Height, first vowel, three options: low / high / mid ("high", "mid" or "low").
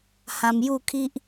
low